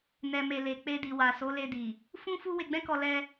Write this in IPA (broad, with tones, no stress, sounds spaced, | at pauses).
n ɛ˨ m e˨ l e˨ k͡p e˧ d i˨ w a˨ s o˨˦ l e˧ d i˨ | f ũ˦ f u˦ w e˧ ɡ͡b ɛ̃˦ k ɔ˧ l ɛ˧